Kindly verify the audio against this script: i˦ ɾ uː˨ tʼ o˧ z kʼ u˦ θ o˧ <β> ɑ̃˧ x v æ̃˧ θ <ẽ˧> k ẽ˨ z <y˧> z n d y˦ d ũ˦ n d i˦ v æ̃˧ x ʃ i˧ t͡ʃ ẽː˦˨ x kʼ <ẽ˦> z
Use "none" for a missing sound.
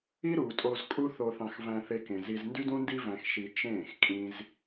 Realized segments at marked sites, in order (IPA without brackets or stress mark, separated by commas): θ, e˧, i˧, ĩ˦